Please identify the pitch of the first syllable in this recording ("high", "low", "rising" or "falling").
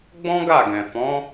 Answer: high